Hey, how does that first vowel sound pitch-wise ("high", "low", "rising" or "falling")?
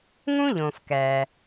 high